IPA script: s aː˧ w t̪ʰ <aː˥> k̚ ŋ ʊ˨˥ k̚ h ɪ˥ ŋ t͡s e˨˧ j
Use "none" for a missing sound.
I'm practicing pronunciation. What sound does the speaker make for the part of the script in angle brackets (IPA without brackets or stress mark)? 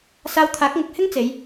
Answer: aː˨˥